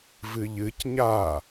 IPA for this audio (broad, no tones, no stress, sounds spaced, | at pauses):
v ɨ ʎ ɨ c ɲ a